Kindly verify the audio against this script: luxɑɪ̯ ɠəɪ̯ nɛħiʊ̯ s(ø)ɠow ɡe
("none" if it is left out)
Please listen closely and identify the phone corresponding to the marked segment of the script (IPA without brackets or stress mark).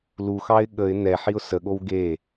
ə